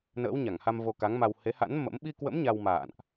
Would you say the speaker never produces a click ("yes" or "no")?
yes